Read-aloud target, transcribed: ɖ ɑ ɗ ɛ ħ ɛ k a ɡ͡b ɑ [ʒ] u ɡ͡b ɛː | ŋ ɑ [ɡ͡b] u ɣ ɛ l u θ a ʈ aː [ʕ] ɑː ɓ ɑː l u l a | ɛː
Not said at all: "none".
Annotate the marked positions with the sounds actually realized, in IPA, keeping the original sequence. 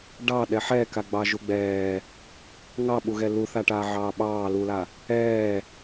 ʒ, ɓ, ʕ

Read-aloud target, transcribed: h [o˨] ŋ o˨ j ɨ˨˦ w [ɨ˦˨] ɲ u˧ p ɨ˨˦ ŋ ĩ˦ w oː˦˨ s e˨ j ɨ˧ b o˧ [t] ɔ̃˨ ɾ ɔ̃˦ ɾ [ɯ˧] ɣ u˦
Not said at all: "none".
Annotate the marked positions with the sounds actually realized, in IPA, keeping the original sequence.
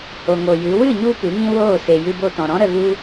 o˨, ɨ˦˨, t, ə˧

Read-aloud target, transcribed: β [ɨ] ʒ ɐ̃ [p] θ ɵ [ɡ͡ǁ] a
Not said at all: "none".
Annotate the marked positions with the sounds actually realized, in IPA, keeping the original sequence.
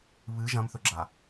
ɨ, m, ɡ͡ǁ

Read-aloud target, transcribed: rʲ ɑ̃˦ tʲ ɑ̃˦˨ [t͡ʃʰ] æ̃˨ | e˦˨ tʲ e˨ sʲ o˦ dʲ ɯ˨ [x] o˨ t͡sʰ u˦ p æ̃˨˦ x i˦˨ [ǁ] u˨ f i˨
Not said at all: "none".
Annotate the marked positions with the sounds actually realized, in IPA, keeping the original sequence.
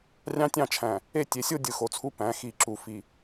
t͡ʃʰ, x, ǁ

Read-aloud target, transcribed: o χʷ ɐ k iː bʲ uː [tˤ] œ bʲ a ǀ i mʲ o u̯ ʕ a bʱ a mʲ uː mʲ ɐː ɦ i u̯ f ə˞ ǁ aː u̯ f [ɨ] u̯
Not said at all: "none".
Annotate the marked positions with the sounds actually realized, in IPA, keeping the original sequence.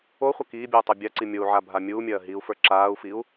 tˤ, i

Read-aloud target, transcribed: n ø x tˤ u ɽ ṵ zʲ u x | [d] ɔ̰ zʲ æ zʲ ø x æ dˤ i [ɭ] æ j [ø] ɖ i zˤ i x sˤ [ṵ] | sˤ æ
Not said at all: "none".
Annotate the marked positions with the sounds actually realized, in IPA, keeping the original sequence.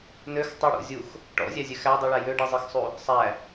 ʈ, ɭ, ø, u

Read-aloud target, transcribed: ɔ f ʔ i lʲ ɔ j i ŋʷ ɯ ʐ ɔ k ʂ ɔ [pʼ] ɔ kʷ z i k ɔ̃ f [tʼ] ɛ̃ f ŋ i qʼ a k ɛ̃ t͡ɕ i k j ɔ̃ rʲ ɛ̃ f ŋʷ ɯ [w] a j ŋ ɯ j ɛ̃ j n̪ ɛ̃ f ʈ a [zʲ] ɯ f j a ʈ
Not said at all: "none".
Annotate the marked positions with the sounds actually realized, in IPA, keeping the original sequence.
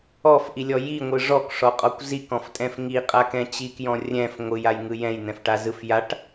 qʼ, tʼ, j, z

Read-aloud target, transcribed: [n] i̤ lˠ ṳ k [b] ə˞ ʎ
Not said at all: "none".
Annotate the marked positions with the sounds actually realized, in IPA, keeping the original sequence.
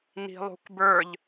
n, b

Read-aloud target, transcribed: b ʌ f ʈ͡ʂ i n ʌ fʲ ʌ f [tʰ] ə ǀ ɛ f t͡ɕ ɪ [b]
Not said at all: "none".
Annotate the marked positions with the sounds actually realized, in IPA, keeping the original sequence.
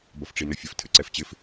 tʰ, f

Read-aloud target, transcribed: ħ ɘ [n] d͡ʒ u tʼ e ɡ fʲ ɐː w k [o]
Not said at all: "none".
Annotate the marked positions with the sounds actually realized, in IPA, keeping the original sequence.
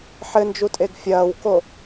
n, o

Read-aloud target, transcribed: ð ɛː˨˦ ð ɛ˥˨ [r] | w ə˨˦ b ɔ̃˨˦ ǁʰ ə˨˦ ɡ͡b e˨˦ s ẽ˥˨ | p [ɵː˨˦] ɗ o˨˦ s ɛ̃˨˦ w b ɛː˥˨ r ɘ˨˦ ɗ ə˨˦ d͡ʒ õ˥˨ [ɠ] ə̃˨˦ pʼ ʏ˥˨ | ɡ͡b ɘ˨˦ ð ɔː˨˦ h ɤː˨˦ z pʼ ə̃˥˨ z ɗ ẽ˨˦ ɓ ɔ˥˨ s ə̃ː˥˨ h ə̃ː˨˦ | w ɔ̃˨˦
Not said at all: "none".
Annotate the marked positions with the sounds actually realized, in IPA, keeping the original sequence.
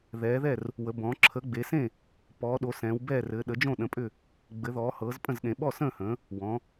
r, ɔː˨˦, ɗ

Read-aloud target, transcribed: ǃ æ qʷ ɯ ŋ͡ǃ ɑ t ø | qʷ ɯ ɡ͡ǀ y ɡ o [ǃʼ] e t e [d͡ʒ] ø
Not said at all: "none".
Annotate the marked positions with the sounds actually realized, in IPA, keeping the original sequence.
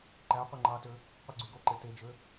ǃ, d͡ʒ

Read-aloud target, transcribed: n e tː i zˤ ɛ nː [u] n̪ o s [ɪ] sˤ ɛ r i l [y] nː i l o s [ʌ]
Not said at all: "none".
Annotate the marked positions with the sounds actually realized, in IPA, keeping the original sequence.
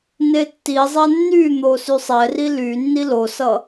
y, y, y, ʌ

